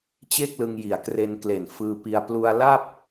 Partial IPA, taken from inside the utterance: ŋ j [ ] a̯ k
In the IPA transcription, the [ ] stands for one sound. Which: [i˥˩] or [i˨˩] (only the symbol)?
i˨˩